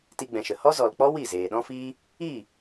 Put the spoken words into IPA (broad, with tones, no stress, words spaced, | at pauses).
ti˧ɡ͡bɛ̃˨ʃə˨ hɔ˦zɔ˨lk͡pɔ˦ wi˦˨zeː˨ɗɔ̃˦ fiː˦ | iː˦˨